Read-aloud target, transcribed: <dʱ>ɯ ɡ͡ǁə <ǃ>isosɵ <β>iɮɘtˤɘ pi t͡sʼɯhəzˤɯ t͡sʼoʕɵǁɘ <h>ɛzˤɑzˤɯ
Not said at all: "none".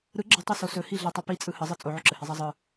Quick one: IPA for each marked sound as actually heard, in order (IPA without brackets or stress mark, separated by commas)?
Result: ɾ, tˤ, h, h